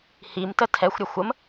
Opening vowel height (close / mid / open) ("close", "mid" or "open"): close